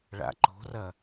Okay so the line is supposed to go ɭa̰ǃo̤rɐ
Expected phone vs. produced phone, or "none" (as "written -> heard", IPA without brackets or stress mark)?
none